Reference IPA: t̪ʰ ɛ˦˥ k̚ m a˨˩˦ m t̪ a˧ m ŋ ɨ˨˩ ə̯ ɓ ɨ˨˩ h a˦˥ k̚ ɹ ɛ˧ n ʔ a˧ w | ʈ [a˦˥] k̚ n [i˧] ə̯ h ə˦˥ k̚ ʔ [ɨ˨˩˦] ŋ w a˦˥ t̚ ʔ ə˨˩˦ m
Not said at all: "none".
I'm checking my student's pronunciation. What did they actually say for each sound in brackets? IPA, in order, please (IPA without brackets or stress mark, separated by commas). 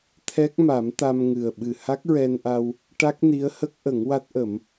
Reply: a˦˥, i˧˥, ə˨˩˦